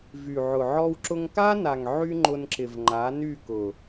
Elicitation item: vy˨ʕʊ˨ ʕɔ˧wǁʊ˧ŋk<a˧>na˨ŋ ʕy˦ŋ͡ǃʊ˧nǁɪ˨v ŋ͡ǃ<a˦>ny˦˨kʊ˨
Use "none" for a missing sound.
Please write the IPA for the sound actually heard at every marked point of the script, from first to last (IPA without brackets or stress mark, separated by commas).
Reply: a˦, a˨˦